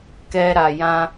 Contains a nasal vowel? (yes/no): yes